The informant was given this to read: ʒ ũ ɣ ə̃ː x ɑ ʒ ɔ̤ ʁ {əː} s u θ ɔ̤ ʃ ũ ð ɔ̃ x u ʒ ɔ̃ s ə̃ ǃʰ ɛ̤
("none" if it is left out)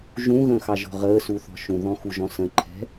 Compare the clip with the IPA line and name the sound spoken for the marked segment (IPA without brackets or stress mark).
əː